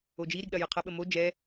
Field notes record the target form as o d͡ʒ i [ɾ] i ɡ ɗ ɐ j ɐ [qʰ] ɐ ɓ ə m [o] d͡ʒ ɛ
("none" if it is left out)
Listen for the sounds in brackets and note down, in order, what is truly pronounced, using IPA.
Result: ɾ, qʰ, o

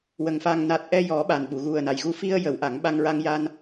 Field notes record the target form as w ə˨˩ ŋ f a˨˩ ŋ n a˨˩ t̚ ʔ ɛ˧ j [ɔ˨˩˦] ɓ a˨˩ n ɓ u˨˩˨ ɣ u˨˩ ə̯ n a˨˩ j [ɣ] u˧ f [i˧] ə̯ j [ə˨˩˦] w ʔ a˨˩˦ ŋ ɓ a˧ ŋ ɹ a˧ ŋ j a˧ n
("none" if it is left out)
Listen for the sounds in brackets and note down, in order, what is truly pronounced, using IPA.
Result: ɔ˨˩˦, ɣ, i˧, ə˨˩˦

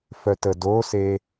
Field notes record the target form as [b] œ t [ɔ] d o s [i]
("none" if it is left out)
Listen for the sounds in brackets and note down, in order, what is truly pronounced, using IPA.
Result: f, ə, e

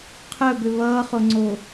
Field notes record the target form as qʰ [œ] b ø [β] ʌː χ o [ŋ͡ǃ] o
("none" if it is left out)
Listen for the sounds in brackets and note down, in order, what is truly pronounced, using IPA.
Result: œ, β, ŋ͡ǀ

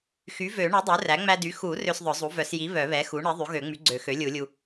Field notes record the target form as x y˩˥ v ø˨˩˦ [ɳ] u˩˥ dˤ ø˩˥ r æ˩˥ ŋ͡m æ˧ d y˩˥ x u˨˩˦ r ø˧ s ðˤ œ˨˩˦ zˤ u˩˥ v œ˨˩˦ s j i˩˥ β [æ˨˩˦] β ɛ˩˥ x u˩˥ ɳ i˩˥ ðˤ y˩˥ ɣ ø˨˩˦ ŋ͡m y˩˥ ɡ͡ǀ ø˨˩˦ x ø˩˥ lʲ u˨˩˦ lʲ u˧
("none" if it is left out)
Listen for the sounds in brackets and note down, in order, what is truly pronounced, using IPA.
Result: ɳ, œ˨˩˦

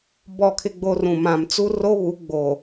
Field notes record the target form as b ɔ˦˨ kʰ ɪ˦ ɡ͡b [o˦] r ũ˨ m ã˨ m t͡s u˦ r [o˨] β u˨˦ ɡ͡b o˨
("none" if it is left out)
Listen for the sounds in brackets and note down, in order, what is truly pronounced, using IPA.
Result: o˦, o˦

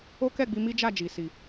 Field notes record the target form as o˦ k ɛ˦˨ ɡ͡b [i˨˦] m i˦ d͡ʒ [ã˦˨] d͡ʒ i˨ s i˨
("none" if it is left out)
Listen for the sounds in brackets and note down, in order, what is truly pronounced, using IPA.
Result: i˧, a˦˨

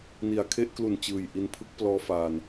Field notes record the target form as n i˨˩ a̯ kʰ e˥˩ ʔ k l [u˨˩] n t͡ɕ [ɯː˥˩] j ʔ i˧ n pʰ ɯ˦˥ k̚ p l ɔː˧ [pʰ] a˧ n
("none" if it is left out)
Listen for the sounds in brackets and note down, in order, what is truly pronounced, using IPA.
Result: u˨˩, ɯː˨˩, f

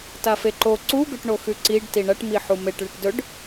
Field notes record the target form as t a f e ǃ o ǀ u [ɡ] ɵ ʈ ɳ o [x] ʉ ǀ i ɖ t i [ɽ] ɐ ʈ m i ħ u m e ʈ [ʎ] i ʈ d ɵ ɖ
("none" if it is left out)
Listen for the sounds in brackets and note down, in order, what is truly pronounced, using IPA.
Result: ɡ, x, ɳ, ɭ

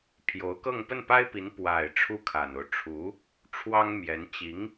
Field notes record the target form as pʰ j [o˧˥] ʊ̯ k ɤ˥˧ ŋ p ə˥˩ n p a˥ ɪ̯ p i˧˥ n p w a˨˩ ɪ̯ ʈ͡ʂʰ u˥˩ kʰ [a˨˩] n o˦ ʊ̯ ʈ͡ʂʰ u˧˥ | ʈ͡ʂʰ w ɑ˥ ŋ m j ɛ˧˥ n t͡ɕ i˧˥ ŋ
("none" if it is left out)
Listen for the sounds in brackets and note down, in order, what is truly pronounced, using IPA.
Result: o˧˥, a˨˩

